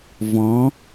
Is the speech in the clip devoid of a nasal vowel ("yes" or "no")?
no